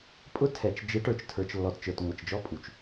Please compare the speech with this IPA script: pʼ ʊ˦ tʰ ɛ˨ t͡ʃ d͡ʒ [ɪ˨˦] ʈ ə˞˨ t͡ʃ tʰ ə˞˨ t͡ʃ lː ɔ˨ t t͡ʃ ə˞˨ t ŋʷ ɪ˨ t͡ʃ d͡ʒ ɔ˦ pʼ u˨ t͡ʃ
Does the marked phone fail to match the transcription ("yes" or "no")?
no